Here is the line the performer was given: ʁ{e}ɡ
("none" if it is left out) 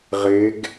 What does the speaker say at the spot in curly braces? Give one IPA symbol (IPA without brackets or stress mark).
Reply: e